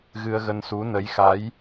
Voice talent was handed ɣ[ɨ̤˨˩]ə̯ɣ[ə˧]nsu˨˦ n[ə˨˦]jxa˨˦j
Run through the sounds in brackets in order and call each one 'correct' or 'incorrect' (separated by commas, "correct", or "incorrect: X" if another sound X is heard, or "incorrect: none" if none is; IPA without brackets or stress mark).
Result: incorrect: ɨ˧, correct, correct